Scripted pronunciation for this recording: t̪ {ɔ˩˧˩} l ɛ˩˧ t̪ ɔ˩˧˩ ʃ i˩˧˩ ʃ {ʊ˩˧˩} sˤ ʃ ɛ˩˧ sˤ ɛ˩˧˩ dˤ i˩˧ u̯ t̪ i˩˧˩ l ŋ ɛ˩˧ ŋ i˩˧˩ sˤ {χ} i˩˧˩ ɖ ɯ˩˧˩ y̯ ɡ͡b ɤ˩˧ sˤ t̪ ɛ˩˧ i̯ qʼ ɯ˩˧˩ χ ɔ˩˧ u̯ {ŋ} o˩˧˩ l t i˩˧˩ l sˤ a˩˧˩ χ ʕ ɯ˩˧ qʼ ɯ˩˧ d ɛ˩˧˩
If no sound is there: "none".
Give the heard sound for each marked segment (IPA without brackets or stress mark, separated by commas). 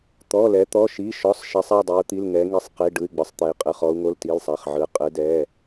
ɔ˩˧˩, ɔ˩˧˩, q, ŋ